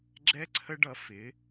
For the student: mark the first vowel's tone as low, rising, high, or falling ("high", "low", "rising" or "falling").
high